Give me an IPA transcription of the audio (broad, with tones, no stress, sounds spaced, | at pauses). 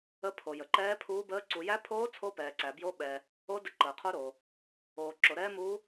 ə˦˥ pʰ o˨ j ə˨ ǃ ɛː˦˥ pʰ uː˦˥ b əː˦˥ ǀ u˨ j æ˦˥ pʰ oː˦˥ t͡sʰ o˦˥ p ɛː˨ ǀ æ˨ b j o˦˥ ɓ ɛː˨ | o˦˥ d ə˦˥ ǃ əː˨ qʰ o˦˥ ɾ oː˨ | oː˨ ǁ o˨ ɾ ɛː˦˥ m uː˦˥